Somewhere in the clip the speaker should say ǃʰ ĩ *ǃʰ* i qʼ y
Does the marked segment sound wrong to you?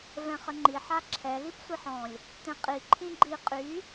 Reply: yes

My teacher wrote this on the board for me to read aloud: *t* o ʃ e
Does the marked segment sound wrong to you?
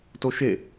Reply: no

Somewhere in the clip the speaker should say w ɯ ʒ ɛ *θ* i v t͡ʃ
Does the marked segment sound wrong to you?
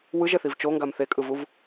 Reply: no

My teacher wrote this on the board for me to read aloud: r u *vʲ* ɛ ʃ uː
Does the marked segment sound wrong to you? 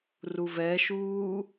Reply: yes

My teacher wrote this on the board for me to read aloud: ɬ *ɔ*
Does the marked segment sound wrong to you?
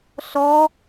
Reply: no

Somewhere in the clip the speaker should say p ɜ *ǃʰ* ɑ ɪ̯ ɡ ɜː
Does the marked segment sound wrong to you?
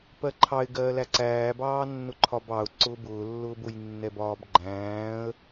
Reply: no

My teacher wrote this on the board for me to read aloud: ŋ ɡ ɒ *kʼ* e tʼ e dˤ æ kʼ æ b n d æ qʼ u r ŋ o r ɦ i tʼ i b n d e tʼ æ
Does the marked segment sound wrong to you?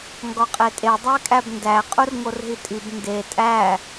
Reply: yes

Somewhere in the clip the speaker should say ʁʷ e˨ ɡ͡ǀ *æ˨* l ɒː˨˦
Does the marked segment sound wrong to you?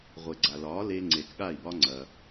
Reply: yes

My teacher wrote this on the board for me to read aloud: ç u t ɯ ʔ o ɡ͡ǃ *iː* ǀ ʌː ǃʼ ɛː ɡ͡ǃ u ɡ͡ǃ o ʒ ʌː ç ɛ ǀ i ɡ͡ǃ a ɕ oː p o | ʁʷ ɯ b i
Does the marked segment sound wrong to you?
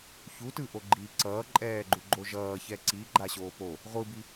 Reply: no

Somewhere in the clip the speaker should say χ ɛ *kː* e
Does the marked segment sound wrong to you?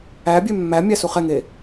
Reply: yes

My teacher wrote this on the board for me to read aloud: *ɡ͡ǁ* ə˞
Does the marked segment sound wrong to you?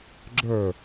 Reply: no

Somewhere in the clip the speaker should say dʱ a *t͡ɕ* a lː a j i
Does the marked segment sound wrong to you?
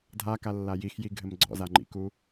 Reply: yes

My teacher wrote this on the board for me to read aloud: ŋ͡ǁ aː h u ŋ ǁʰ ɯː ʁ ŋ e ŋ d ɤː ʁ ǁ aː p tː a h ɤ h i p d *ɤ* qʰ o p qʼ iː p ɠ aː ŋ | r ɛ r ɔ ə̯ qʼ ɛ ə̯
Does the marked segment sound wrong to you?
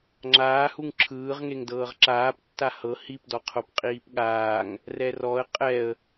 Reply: yes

